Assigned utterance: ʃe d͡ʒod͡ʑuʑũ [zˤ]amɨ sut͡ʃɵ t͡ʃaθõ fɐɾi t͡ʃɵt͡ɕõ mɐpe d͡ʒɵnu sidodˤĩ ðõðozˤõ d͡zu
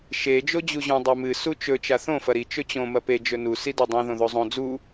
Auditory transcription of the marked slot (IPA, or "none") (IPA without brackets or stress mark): dˤ